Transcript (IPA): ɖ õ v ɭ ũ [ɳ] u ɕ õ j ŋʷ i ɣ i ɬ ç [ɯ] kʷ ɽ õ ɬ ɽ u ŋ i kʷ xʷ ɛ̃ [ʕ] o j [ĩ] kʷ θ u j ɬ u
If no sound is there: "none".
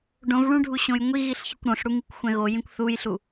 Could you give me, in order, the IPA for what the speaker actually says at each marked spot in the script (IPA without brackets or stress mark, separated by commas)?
ɖʱ, ɯ, ɣ, ĩ